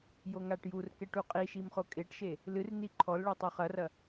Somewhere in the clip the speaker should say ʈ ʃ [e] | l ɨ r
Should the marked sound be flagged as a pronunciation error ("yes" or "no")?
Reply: no